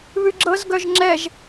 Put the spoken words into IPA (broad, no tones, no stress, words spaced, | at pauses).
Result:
βʉɡ͡ǁɤz ɡœʒŋ͡ǁɛʒ